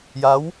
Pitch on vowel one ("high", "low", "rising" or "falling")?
rising